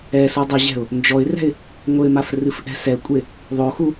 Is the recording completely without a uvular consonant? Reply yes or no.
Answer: yes